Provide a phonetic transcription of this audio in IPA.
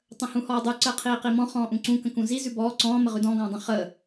tˤ ə̃ h ũ h ɔː dˤ ʉ ǀ əː qʰ iː q i m ɔ̃ χ ɔ̃ː ʔ ũ ǀ ũ k ə̃ k ũ z i z ʉ b ɔː ǀ ɔ̃ː m ə ʁ ʉ d ɔ̃ ɡ ɔ̃ː dˤ ə̃ χ əː

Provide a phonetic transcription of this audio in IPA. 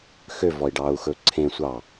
x ø v ɔ i̯ ɖ ɑ u̯ x ɵ ǀʰ ẽ sʷ ɑ

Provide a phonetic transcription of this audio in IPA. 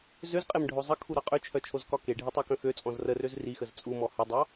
z ø z qʼ e m ɖʱ o zˤ ə kʰ u ɾ ɑ qʼ ø t͡ʃʰ œ t͡ʃʰ o z k ɒ k e ɖʱ i tˤ ɑ k œ̃ x ø t͡sʼ ɔ̃ z r ə r ø z r i x ə z t͡sʼ u m ɔ h ə dˤ ɑ

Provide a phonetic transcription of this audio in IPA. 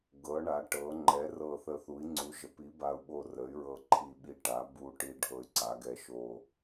ɡ ɤ˩˧ ɳ a˩˧ ʈ ɤ˩˧ ŋ͡ǃ ɛ˩˧ r ɤ˨˩ θ ə˨˩ θ u˩˧ i̯ ŋ͡ǀ u˩˧ ʒ ə˩˧ p i˩˧ b a˨˩ u̯ ɓ o˨˩ r ə˩˧ y̯ ɹ ɤ˨˩ ǃʰ i˨˩ ɓ i˨˩ ʈ a˩˧ b u˨˩ ʈ i˨˩ ɖʱ ɤ˨˩ y̯ ǀ a˩˧ ɡ ɛ˨˩ ʃ o˨˩

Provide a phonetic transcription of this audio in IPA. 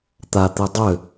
t̪ a t̪ i dˤ ø

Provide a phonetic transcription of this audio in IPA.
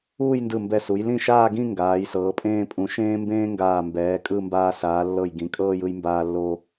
uː˥˧ j n d ɯ˧˩ m b ɛ˧˩ s u˩˧ j l ĩ˥˧ ʃ aː˥˧ ɡ ĩ˥˧ ŋ ɡ aː˩˧ j s ɤː˩˧ pʼ ẽː˥˧ pʼ ũ˧ ʃ ẽː˥ m b ẽː˥ ŋ ɡ aː˧˩ m b ɛː˩˧ kʼ ɯ˥˧ m b aː˧ s aː˩˧ lː ɤ˧˩ j ɡ ĩ˩˧ kʼ ɤː˥˧ j ɯ˧ j m b aː˧ lː o˧

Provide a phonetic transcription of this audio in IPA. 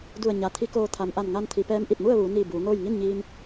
d u˧˩ ə̯ ɲ a˩˧ t̪ʰ i˧˥ k oː˧ t̪ʰ a˩ m ʔ a˧˩ n ŋ a˧ n t̪ʰ i˩˧ p ɛː˧˥ m ʔ i˧˩ t̚ m u˥˨ ə̯ ʋ uː˩˧ n iː˧˩ b uː˩˧ ŋ oː˥˨ j ŋ i˥˨ n ɲ iː˧ m

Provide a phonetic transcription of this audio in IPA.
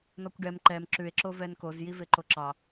n ɔ kʷ ɖ ɛ m ǃ ɛ m ǁ ʉ e̯ ǁ o v ɛ n k o z j i v e ǃ o ǁ ɑ

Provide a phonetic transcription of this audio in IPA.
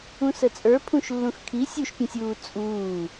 ũ s ə t͡sʼ ə˞ pʰ ũ ʃ lː ũ x kʰ i sʲ u ʃ pʲ ə̃ sʲ uː t͡sʼ uː

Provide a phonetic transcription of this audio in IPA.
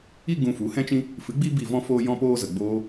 i˦ ɡ ũ˧ f u˨˦ h ɛ̃˦ t͡ʃ ĩ˦ | f ɨ˨˦ ɡ͡b i˦ b i˦˨ v ɔ̃˦ f oː˦ j ɔ̃˦ p oː˦ z ə˨ ɡ͡b oː˧

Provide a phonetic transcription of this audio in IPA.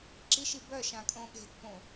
ǁ i ʃ i b œ ʃ ã kʼ õ ɠ e̤ t p õ

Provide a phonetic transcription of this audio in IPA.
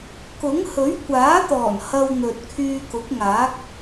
k ʊ˨˥ ŋ h ɵ˨˥ ɥ kʷ aː˨˥ t̪ ɔː˨˩ n h ɐ˧ w n̪ ɵ˨ t̚ kʰ yː˧ k ʊ˨˥ k̚ ŋ aː˨˥ k̚

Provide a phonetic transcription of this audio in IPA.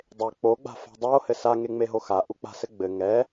dˤ e k͡p o ɡ͡b a̤ f a̤ dˤ o h ɘ s a ŋ e ŋ͡m e ɦ o x a ʔ u k͡p a̤ s ɘ ɡ͡b ɘ ŋ ɛ

